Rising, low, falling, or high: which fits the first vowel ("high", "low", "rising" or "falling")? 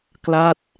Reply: falling